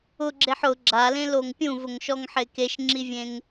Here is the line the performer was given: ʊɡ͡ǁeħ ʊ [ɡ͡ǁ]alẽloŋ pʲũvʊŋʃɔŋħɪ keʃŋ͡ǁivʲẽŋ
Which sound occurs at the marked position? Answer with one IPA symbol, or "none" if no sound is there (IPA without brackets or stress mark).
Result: ɡ͡ǁ